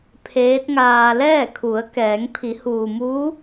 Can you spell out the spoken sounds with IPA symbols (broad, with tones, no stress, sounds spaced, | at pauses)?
pʰ eː˧˥ t̚ ŋ aː˧ l ɛː˥˨ kʰ u˩˧ ə̯ k ɛː˩˧ ŋ pʰ i˩˧ h uː˩ m uː˧˥